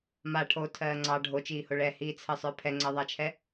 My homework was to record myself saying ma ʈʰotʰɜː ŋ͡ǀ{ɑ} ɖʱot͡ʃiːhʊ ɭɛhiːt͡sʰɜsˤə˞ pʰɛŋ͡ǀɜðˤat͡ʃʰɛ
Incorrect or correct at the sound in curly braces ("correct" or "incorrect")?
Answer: correct